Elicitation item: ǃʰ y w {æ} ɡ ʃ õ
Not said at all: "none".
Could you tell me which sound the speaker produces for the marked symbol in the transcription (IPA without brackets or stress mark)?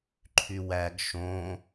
æ